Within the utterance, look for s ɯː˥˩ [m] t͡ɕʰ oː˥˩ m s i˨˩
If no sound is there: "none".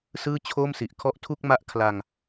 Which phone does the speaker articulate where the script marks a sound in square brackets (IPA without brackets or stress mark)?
none